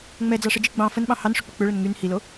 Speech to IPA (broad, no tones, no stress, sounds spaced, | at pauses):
ŋ͡m ɛ d͡z ɑ ʂ ə d͡ʒ i ɡ͡b ɑ̃ f ə n ɓ ɑ̃ h ɑ n ʂ ʏ k͡p ə k͡p ʏ ɭ ə n ŋ y n h i l o